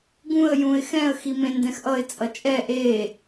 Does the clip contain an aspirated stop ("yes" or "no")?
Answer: no